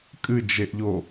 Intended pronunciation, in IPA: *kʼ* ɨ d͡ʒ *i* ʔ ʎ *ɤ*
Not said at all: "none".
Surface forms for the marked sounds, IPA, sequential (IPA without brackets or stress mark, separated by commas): kʼ, e, o